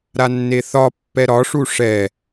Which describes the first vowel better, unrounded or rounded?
unrounded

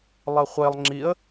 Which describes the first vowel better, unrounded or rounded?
unrounded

